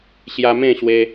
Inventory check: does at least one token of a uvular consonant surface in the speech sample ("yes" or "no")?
no